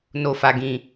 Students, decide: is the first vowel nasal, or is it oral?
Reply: oral